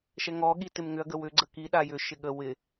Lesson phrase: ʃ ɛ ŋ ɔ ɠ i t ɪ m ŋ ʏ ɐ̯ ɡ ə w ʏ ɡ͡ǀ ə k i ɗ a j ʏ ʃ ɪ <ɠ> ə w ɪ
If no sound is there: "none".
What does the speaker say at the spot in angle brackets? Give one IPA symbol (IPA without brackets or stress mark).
ɠ